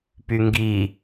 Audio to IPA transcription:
pyŋɡi

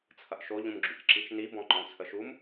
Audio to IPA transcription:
t͡sʰɐʔʃo ʎũmɡ͡ǁycǁit͡ʃni bɔ̃ŋ͡ǃɔ̃t͡sʰəʃum

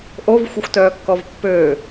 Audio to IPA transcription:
ʔovxʷəxʷtœːkːɔv pːøː

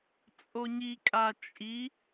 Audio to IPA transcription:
t͡sʼoɲikʼa t͡ʃʼi

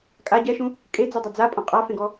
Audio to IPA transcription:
kʼa ɟɛʃũ | kʼed͡zudˤa d͡zapʼɔ̃ qʼafẽɡɔ

